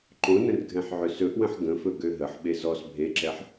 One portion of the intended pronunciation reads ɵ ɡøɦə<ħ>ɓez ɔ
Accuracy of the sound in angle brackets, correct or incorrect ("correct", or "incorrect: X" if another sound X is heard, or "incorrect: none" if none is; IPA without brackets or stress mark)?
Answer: correct